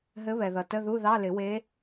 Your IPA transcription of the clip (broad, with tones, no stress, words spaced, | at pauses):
ɦɘ˧˥βɛ˩ðʌ˩ tə˧˥˧ðu˧˥˧ðɑ˧˥˧ lɪ˨˩˦we˧˥